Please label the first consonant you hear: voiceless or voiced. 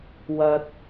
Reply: voiced